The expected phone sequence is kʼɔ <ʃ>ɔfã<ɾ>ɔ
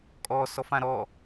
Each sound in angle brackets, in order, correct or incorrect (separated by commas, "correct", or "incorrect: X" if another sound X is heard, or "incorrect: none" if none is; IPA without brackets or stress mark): incorrect: s, correct